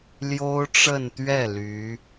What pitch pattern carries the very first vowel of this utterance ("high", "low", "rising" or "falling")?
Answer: high